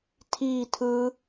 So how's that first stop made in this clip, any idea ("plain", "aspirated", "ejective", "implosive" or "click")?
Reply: aspirated